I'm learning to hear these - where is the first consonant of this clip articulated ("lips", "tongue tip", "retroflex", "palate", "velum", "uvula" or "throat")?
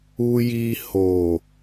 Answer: palate